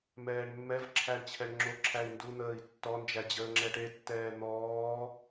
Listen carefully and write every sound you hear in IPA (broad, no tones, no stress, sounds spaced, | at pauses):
m ɛː ɳ mː ɛ v ǁʰ æ ɳ t͡ɕʰ ɛ ɳ ŋ͡ǁ o ǁʰ æ i̯ n d u n̪ əː i̯ tː ɔ n d͡ʒ æ d͡ʑ əː ŋ͡ǁ ɛ ʈ e tː ɛː n̪ ɔː